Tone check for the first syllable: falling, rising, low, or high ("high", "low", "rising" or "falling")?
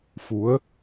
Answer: rising